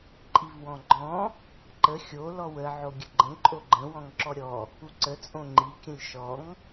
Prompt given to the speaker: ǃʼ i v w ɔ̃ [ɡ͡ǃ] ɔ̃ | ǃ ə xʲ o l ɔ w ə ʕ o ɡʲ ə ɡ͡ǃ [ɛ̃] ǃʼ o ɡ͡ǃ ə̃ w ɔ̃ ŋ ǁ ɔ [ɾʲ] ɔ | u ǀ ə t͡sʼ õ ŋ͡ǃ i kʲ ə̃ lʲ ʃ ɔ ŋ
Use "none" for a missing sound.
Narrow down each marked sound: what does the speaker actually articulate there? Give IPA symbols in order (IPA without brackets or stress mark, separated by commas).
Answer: ɡ͡ǃ, ə̃, ɾʲ